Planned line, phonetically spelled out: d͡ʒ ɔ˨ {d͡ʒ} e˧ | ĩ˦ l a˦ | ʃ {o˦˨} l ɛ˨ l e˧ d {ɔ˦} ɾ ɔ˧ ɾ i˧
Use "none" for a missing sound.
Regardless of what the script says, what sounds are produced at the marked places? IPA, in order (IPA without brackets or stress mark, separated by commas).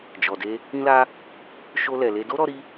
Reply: d, o˧, o˦